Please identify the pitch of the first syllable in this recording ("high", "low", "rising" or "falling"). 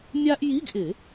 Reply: high